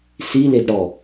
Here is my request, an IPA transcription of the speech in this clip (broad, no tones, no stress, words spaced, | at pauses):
si ledɽɔ